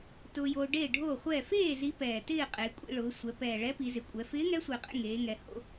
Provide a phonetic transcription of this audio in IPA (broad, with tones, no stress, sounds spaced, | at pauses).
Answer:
t ʊː˧ j oː˧ ɖ eː˥˨ ɖʱ oː˥˨ χʷ ɛː˥˨ f eː˥˨ z i˧˥ p ɛː˨˩ t ɪː˥˨ qʼ eː˩˧ kʷʼ ḭ˧ ɭ ʊː˩˧ sʷ ɛ˩˧ p ɛː˨˩ ɭ ɛ˧˥ p i˩˧ z ɪ˨˩ kʷʼ ɛ˩˧ f ɪː˧˥ ŋ ɛ˧˥ sʷ ɪː˨˩ qʼ ḛ˥˨ ŋ eː˩˧ ŋ ɛ˩˧ h o̰˥˨